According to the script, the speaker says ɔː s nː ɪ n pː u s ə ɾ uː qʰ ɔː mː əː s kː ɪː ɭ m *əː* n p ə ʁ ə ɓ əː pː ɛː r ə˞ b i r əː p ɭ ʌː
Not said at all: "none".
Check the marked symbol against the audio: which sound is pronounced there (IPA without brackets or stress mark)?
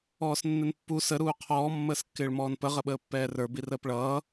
ɔː